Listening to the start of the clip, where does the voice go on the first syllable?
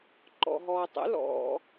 low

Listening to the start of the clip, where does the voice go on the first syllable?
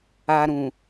low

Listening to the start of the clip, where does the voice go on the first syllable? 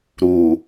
low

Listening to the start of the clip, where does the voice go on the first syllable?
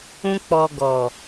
high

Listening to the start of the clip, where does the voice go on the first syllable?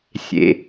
low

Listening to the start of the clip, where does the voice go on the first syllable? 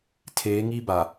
rising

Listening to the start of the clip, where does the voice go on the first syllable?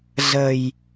low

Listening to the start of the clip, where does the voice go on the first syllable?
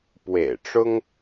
low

